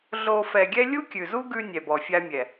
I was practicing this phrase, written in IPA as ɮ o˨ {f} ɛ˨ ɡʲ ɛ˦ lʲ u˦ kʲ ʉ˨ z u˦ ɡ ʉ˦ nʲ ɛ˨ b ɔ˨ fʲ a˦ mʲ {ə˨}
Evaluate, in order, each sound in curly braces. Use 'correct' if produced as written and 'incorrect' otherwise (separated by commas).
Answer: correct, incorrect